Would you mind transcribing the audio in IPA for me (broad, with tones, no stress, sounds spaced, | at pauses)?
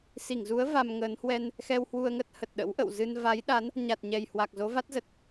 s i˧˩ ŋ z u˨˦ ə̯ v a˧ m ŋ əː˨˦ n h w ɛ˧ n | x ɛ˧ w h w u˧ ə̯ ŋ ə˦˥ t̚ h ə˨˩ t̚ ɗ ə̰˧˥ w ʔ ə̰˧˨ w z ɨ˧ n v a˨˦ j ɗ a˨˦ n | ɲ a˨˩ t̚ ɲ ɛ˨˩ j h w a˨˩ k̚ z o˨˦ v a˦˥ t̚ z ə˨˩ t̚